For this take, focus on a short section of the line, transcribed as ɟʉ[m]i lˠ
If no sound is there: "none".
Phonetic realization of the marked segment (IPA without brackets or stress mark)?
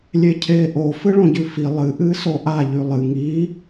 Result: f